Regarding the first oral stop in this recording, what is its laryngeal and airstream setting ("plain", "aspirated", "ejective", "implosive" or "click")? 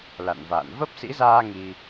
plain